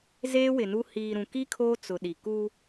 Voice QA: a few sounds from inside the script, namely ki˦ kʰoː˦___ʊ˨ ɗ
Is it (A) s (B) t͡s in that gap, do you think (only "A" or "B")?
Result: B